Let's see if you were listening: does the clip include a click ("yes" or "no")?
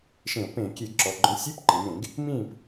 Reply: yes